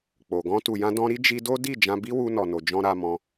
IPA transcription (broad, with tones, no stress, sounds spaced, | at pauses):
k͡p o˨ ɡ ɔ̃˧ t u˨ j ã˧ d ɔ̃˧ ɾ i˦ d͡ʒ i˧ d o˦ d i˦˨ d͡ʒ ã˧ b i˦ w u˧ n ɔ˨ n o˨ d͡ʒ ɔ̃˧ ɾ a˧ m ɔ̃˧